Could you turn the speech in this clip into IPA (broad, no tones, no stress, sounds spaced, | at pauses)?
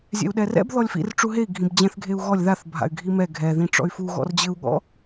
zʲ ɛ̰ u̯ ɗ ɛ r ɛ̰ b ð ɔ lʲ f ḭ r ʈ͡ʂ u ɦ e i̯ ɡʱ ĩ b d͡ʑ ɛ̃ θ ɡʱ e u̯ ɣ ɔ lʲ ð a θ bʱ a̰ y̯ ɡʱ i m ɛ ɡʱ ɛ ð ĩ ʈ͡ʂ ɔ̰ y̯ f u ɣ ɔ̰ r d͡ʑ ɘ u̯ ɠ ɔ̰